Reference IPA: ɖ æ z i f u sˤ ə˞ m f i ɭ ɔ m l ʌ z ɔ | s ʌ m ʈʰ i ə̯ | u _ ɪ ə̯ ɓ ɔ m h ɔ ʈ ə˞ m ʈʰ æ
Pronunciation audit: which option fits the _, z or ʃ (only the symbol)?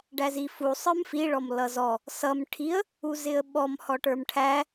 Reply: z